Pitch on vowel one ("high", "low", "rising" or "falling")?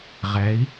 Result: rising